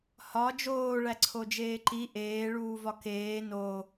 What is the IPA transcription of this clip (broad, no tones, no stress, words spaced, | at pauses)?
hɒ d͡ʒoː ɭæǀʰod͡ʒeːǃi ʔeː ɭuːvɒkeː no